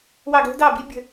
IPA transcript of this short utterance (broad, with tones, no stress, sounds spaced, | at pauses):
w ɑ˦˨ ɡ l ə̤˥ d ɑ˦˨ b i˥ bʲ ə̤˦˨